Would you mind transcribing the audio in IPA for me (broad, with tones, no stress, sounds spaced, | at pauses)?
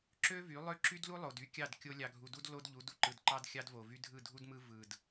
ǁ ø˦ v y˨˦ lˠ ø˦ ǁ y˦ d l u˦ lˠ o˨ d y˦ kʲ ɑ˦˨ d kʲ o˦ lʲ ɑ˨ ɡʱ u˨ d u˦ d l o˦ d ʎ u˨˦ d u˨ ǃ ɯ˨ d ǃ ɑ˦ d xʲ ɑ˦ d v o˨ v y˦ dʱ ɯ˦˨ dʱ u˦ d m ɯ˦ v ɯ˨ d